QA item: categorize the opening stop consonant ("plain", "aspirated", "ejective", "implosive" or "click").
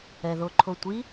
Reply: click